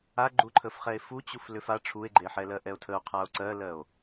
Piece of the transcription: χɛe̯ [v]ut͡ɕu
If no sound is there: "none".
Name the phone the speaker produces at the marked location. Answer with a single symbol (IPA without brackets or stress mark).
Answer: f